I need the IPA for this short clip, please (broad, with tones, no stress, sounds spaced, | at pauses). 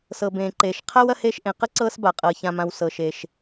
s ɤ˩ b ẽː˩ ǃ eː˩ ʃ qʰ a˥ w ɐ˥ h eː˥ ʃ ʔ ẽ˩ q ə˥ ǀ ɤː˥ s b a˩ qʼ ɤː˩ ç ã˩ m ã˩ w s ɤ˩ ʃ e˩ ʃ